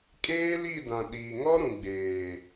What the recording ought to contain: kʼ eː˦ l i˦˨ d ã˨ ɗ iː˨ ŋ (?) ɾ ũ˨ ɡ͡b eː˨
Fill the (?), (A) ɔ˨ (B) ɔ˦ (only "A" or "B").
B